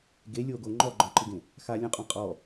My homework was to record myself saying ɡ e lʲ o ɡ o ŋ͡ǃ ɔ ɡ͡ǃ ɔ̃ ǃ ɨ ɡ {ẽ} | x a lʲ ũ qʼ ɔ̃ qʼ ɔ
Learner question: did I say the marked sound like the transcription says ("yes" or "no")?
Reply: yes